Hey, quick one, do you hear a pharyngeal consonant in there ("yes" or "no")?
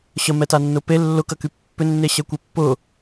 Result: no